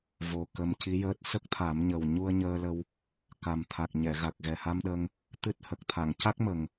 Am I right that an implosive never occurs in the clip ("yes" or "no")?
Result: no